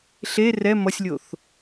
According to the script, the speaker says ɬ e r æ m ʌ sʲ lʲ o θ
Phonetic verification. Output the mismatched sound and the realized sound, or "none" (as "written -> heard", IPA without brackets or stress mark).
æ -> ɛ